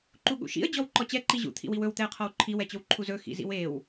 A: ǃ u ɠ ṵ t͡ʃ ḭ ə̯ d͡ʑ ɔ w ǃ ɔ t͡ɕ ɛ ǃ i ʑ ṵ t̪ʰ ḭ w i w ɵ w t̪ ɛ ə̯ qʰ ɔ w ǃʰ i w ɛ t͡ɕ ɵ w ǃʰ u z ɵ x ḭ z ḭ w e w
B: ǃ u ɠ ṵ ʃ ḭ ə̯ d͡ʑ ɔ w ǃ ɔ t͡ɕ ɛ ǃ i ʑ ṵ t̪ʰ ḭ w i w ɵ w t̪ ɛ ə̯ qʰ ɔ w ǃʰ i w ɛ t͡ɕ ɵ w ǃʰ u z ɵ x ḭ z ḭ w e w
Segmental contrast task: B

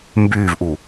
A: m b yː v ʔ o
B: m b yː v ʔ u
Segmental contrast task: B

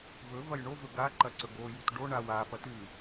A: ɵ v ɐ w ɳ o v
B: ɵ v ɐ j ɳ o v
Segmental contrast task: B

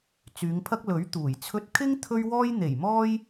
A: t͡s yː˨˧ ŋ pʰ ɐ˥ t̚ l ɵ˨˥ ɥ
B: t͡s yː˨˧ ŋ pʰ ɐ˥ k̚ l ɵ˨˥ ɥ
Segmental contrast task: B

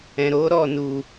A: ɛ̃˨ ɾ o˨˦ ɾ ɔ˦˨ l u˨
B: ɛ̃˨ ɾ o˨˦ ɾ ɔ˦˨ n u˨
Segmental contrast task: B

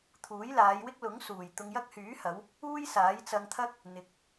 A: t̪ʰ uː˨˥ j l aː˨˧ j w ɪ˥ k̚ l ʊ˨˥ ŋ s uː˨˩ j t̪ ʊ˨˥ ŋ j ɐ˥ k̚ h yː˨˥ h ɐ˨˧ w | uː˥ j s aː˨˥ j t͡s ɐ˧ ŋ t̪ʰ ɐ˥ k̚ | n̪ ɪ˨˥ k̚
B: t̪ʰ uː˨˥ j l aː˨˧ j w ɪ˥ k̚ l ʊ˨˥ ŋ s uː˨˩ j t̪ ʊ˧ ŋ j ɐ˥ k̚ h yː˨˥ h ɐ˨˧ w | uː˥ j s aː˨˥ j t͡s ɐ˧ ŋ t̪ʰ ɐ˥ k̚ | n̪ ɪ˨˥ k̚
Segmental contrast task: B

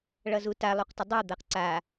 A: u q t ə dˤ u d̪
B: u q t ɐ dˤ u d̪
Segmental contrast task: A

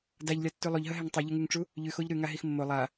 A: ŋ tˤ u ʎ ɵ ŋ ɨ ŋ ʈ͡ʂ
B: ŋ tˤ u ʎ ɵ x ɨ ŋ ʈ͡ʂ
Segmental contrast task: A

